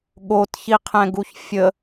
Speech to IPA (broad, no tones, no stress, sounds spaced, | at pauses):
ɠ o t ç i qʰ ɛ̃ ɡ u ç fʲ ə